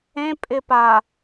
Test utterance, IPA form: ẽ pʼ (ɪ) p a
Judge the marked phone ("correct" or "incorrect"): correct